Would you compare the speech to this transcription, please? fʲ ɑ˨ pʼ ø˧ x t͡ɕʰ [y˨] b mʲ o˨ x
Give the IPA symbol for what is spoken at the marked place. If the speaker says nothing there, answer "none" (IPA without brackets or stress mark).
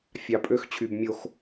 y˨